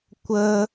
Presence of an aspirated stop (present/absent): absent